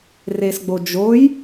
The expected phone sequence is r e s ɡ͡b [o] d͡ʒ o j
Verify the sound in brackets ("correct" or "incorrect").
correct